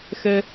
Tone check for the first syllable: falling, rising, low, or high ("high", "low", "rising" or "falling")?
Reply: high